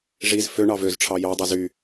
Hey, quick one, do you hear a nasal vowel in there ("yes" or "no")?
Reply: no